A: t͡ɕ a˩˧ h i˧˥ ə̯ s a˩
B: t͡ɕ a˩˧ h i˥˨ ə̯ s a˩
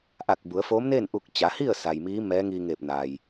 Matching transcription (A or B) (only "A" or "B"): B